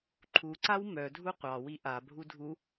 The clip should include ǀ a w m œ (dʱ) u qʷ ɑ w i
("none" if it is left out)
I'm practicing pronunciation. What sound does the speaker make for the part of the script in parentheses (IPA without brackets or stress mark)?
dʱ